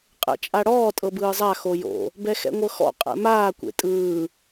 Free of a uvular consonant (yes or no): no